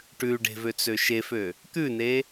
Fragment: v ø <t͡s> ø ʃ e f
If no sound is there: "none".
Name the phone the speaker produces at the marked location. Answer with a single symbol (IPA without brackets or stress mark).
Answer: t͡s